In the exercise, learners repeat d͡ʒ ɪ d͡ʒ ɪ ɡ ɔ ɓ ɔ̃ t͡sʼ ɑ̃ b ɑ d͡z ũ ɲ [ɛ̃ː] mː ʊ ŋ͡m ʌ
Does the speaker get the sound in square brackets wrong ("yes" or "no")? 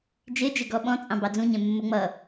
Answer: yes